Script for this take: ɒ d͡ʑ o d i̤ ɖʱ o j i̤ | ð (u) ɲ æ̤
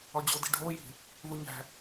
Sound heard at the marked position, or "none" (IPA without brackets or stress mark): u